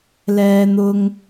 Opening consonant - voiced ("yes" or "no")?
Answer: yes